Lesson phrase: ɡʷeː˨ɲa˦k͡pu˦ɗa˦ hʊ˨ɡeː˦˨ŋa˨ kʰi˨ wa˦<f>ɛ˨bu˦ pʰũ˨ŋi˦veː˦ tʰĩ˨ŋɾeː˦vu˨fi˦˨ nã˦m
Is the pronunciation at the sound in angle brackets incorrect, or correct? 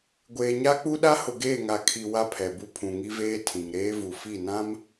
incorrect